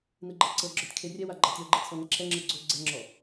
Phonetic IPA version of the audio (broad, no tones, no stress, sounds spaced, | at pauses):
n ɯ ɡ͡ǃ ɛ ǀ ɤ ɡ͡ǁ ɔ tʲ kʰ e rʲ ɛ w a ɡ͡ǃ a tʲ ɔ ɡ͡ǃ e t͡sʰ ɔ n ɛ ǁʰ ɛ ŋ͡ǁ ɯ ɡ͡ǀ o ɡ͡ǀ ɛ ŋ͡ǁ ɔ